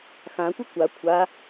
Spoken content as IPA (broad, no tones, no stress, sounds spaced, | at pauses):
x ã kʷ ə kʷ a kʷʰ a